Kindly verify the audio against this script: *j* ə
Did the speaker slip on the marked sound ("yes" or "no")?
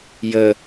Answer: no